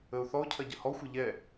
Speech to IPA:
ə ʊ̯ θ ɔ ʊ̯ cʰ ɐ ɟ ə h ɔ xʷ ɐ ʎ ɛ

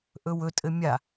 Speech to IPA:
ʔ ɵ w ɵ tʼ ɘ mʲ a

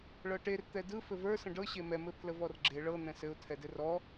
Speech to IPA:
ɭ ɤ ʈ e r t̪ ɛ d ɯ f ɘ v ə˞ s ə̃ ɖ ɤ ɕ e m ɛ m ɘ pʰ l ə v ɔ r ɡ͡ǁ e ɭ ɤ n̪ ɛ̃ s ɘ ʊ̯ tʰ ɛ d ɘ r ɔ

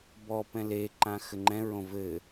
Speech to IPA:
b ɔ p ɛ̃ l e ǃ ã x ɘ ŋ͡ǃ ɛ̃ ɹ õ v ɘ

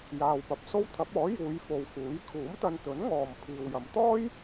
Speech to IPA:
j aː˨ w p ɐ˨ p̚ s o˥ w t̪ʰ ɐ˨˥ p̚ ɔː˨˥ j uː˨˧ j f o˨ w f uː˨˥ j kʰ uː˨˥ m t̪ ɐ˧ n t̪ ɵ˨˥ n ŋ ɔː˨ m pʰ iː˨ w j ɐ˨˧ m t̪ ɔː˥ j

